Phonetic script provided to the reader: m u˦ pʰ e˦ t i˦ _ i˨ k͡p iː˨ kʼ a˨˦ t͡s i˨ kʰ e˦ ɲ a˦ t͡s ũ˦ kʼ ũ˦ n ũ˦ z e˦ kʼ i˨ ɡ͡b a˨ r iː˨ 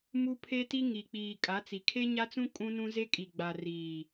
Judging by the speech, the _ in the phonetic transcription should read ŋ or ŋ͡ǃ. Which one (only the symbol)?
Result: ŋ